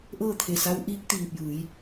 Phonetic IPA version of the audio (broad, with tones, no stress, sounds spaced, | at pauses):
ʔ ɤː˥˨ t̪ʰ e˧˩ s a˧˥ w ʔ iː˧˥ k̚ t̪ iː˧˩ p̚ j ɯː˩˧ j